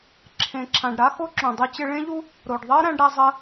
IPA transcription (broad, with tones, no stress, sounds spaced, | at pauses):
ǁʰ ẽ˩ ǁʰ ã˩ ɖ ɾ a˥ x o˥ ǁ õ˩ dˤ ʉ˧ t͡ɕ ɪ˧ ɭ ẽ˥ ʎ u˥ | ɾ o˩ ɖ ðˤ ɜ˥ ɾ æ̃˧ ɖ ɾ æ˧ zˤ ɜ˧